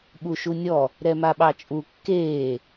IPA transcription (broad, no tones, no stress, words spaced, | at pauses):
ɓuʃunʲɔ | ɾɛmaɓɑt͡ʃʼu kːeː